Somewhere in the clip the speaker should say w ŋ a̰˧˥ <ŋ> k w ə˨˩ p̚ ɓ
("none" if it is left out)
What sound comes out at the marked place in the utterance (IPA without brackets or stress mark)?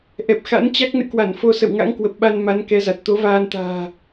ŋ